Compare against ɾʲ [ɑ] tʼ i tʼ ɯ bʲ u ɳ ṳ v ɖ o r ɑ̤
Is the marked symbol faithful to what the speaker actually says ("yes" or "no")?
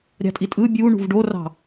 no